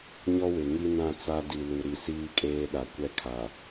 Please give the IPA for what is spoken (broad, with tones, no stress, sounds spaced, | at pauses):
ɲ ɔ˦ w ɪ˨ ŋ i˦ n ã˦˨ t͡s a˦ d i˨ l u˨ ɾ i˨ s iː˦ kʼ eː˦ ɗ a˨ kʷ ɛ˦ kʰ a˨